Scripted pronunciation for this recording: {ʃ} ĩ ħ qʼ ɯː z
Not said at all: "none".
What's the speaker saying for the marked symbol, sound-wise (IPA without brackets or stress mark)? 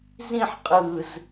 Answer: z